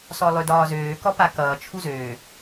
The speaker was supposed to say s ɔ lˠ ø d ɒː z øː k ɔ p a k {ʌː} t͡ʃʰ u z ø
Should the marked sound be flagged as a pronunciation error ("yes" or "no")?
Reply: no